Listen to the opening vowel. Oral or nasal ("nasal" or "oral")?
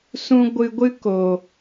nasal